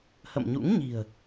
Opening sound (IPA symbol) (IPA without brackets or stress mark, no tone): h